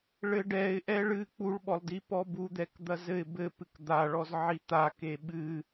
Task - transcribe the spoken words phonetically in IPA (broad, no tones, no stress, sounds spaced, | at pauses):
ɭ ɘ ɖ ɛ ɪ̯ ʔ ɛ ɭ ɨ k͡p u ɭ ɓ ɔ lˠ d i p ɔ b u d̪ ɛ k d̪ ɐ z ɘ ɪ̯ b ɘ p ɨ k d̪ a ɭ ɔ z ʕ i t̪ a k e ɓ ɨ